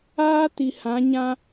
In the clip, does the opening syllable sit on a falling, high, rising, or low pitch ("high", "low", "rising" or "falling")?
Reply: high